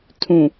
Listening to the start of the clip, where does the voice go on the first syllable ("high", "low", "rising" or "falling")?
low